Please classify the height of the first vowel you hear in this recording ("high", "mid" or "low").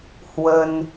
mid